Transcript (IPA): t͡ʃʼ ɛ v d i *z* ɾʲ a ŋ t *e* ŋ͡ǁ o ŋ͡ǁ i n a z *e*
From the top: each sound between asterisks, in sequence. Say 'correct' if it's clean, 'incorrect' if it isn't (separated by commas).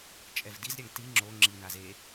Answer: correct, incorrect, correct